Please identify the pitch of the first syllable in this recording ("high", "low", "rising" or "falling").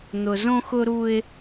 low